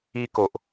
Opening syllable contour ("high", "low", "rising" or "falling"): high